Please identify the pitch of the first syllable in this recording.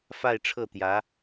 falling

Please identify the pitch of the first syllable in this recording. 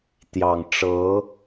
low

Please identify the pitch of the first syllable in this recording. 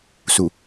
low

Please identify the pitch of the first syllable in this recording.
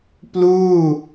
falling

